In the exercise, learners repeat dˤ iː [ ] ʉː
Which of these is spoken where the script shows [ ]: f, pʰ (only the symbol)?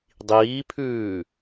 pʰ